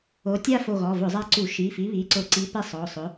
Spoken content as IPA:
o˨˥ tʲ a˥˧ f o˧˩ ɣ ɔ˩˧˩ v ʊ˧˩˧ zˤ a˧ ǀ u˧˩˧ ʃ i˩˧˩ f i˨˥ β i˩˧˩ ǀ ʊ˧˩˧ ǀ i˨˥ p ɛ˥˧ sˤ ɔ˩˧˩ sˤ ʊ˨˥

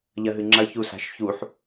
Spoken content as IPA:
ʎ ɐ ɦ ɨ ŋ͡ǁ ɐ ç u s a̤ ʃ ç u ħ

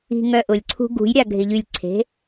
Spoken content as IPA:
i̤ ŋ œ ʔ ʊ lʲ ǀʰ ṳ ɡ ṳ j ɾʲ a ɡʱ ɪ ʎ y lʲ ǀʰ e̤

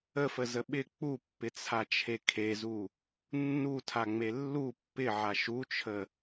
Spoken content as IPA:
ə f ə z ə ɓ ɪ k͡p u pː ɪ t͡sʰ a t͡ʃʰ e kʰ e z u | nː u tʰ a ŋ͡m e lː u pː ɪ ʕ a ʃ u t͡ʃʰ ə

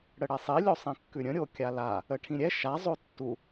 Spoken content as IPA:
ɽ ə ɽ ɛ sˤ i lʲ o sˤ ĩ kː ʉ ɾʲ ə̃ ɾʲ o kʲ a l a | ə ʈʰ ĩ ɾʲ ɛ ʃ a zˤ o tː u

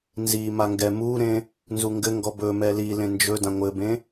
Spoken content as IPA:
n z i m a ŋ ɡ ɛ m u ɾ ẽ | n z u ŋ ɡ ɘ ŋ ɡ ɔ b ɵ m ɛ l i l ẽ n d͡ʒ ɵ d ã ŋʷ ɘ b ẽ

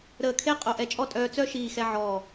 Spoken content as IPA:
ɾ əː˧˩ kʰ e˥ qʼ o˧ ʔ ɛ˧ t͡ʃʼ ɔ˥ tʼ œː˧ t͡s œ˥˧ ʃ iː˧˩ x ɛ˧ ʕ ɔ˧˩

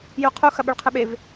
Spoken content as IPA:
j u qʰ u x ɐ ɓ ʉ ɭ qʰ ɨ ɓ e v

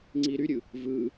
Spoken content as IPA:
ŋ͡ǀ i ɾ y ɾʲ ɯ | v ɯː

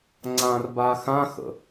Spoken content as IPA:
ŋ͡ǀ ã r b a x ã x ə̰

